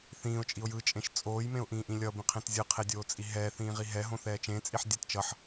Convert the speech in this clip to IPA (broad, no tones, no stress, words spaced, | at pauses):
θĩːʊ̯t͡ʃʼiʊ̯ jɯt͡ʃʼẽʃ t͡sʼoːjmẽʊ̯ʔĩːʔĩ lʲʌbĩqʰẽt zʲɯqʰedʲoːt͡sʼi ɦɛːθĩːʁi ɦɛɦõθɛː t͡ʃẽt͡sʼiħdʲɛt t͡ʃʌħ